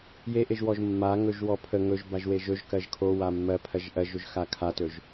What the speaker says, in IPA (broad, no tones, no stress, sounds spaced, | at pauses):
j e ʔ e ʒ w ɔ ʒ mː a ŋ ɵ ʒ w ɔ pʰ ə ŋ ɵ ʒ b a ʒ w e ʒ ɵ ʒ k ɜ ʒ kʰ o w a mː ɜ pʰ ɜ ʒ ʔ ɜ ʒ ɵ ʒ x a kʰ a t ɵ ʒ